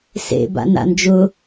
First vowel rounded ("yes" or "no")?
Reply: no